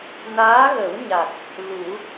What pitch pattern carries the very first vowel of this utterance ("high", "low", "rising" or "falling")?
rising